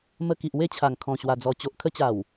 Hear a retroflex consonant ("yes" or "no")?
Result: no